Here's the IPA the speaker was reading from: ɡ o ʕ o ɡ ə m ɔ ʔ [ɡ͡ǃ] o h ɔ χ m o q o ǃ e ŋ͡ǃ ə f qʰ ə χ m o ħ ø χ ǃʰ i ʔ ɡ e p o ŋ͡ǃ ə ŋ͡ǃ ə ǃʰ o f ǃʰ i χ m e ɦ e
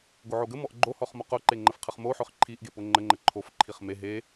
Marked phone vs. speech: correct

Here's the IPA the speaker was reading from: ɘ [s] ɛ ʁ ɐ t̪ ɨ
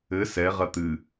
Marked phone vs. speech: correct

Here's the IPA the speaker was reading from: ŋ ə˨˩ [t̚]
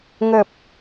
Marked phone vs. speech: incorrect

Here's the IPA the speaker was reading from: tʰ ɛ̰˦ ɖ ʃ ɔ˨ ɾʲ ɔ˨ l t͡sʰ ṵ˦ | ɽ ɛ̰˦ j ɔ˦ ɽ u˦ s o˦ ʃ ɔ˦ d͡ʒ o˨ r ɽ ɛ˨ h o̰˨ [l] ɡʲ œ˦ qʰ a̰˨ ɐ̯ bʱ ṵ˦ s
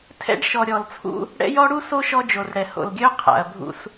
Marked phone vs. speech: correct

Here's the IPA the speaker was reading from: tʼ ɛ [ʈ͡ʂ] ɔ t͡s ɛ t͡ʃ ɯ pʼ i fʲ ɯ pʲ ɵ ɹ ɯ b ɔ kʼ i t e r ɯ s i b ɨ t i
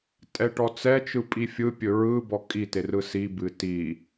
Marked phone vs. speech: incorrect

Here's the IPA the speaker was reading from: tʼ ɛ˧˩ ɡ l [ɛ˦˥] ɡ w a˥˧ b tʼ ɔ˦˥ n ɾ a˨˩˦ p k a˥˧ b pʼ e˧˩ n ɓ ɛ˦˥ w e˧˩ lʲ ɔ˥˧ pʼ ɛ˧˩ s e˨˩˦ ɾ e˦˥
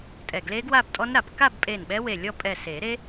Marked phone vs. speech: incorrect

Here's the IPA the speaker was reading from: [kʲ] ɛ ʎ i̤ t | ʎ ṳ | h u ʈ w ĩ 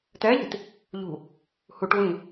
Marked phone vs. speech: incorrect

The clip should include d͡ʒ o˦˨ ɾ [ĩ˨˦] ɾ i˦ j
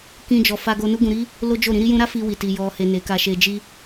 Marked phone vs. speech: correct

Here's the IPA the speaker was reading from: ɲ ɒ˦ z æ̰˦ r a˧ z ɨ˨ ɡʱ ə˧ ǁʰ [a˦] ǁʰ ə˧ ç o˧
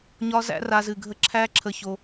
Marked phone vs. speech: incorrect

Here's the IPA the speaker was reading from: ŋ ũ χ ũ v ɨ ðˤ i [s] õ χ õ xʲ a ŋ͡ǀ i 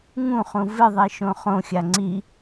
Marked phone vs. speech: incorrect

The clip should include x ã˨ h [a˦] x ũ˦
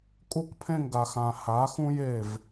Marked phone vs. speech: incorrect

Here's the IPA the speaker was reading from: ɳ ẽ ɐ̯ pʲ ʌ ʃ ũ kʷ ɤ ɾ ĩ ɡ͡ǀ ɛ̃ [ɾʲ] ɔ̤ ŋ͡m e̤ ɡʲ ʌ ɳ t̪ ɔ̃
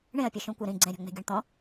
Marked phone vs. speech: correct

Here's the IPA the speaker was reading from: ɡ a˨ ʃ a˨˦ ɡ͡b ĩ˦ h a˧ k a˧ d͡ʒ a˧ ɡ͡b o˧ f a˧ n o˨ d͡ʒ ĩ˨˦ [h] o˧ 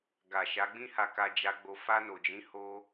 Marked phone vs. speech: correct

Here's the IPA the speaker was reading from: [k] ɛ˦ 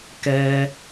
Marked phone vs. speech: correct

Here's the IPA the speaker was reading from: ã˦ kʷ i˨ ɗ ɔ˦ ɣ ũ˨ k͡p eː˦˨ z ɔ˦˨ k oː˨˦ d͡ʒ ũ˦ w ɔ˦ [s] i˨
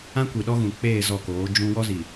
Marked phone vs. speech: incorrect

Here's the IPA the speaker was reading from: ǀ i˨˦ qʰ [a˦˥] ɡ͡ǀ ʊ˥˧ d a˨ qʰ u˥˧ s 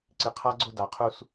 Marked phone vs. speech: correct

